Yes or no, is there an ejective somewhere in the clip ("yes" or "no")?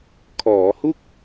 no